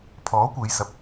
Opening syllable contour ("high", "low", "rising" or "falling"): rising